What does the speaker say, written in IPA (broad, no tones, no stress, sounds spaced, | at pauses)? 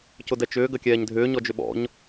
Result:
c ʊ d ɛ t͡ʃ ʏː ɡ ɐ kʲ ɛː ɲ dʱ ʏː ɲ ɔ d͡ʒ ʏ ɓ ɔ̰ ɲ